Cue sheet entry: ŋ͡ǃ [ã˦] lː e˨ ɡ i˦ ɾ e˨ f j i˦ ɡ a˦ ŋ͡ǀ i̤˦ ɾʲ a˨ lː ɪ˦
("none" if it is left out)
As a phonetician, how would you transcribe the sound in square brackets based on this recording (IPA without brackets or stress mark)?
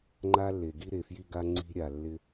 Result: a˦